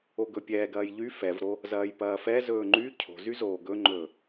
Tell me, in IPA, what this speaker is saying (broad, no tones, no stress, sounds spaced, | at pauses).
o ɡ ɵ pʲ ɛː ɡ ɐː j ʎ y f ɛ v ɾ o | z ɐː j p ɐː f ɛ z ɵː ŋ͡ǃ y cʰ o̤ z y z oː ɡ ɵ ŋ͡ǃ ɵː